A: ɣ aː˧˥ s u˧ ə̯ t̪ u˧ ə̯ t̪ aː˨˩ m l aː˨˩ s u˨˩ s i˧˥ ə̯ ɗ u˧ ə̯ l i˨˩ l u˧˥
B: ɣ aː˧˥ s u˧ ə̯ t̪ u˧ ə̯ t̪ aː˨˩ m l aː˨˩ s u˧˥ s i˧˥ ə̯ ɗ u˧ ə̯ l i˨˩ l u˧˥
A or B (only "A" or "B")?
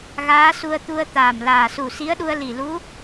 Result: A